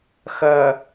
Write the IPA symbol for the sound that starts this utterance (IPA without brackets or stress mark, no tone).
x